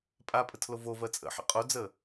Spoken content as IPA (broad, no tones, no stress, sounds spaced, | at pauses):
pʼ a pʼ ə tʰ l o v o v ɜ t͡sʼ ə̰ ħ ə̰ qʼ o d͡z ə